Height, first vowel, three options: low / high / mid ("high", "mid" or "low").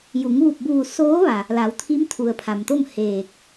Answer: high